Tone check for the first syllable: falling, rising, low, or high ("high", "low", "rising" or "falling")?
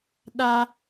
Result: high